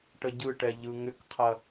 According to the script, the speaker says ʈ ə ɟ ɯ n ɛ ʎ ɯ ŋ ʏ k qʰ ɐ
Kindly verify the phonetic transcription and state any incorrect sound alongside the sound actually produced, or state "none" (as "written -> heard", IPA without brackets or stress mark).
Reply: n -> ʈ